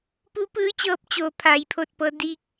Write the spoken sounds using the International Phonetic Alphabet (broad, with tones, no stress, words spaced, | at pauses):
pu˧˥pɯː˧˥t͡ɕɤː˧p̚ t͡ɕoː˩ pʰaː˩˧jpʰo˧˩t̚pɤː˧ di˧k̚